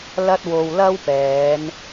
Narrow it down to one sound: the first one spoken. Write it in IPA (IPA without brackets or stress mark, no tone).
l